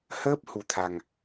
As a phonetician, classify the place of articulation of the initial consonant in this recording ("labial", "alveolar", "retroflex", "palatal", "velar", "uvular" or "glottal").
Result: glottal